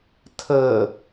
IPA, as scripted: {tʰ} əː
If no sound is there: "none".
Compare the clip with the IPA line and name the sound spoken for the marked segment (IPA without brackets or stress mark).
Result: tʰ